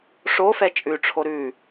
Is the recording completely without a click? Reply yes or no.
yes